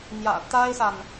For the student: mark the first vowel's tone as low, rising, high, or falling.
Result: low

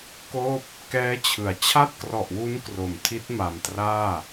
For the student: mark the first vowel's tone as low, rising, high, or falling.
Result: falling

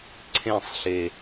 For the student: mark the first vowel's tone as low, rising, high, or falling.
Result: falling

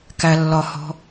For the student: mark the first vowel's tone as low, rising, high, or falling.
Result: low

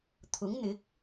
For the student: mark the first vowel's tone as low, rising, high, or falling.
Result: rising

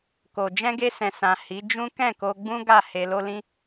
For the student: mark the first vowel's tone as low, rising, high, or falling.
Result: low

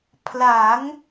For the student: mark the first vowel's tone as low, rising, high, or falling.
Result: rising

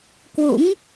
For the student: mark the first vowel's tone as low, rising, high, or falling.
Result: rising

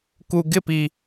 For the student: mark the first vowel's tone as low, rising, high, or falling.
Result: low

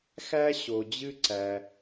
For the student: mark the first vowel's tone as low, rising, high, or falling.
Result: high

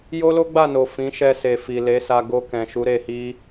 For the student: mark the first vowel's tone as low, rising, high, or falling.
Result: high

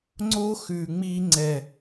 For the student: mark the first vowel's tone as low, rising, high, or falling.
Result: high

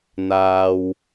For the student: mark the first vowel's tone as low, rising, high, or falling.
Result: low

